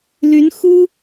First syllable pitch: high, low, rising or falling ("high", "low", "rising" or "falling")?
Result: rising